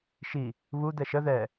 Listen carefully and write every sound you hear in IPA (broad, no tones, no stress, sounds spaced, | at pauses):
ʃ i | β u d̪ ɛ ʃ ə ð ɛ